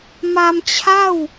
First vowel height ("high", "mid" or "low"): low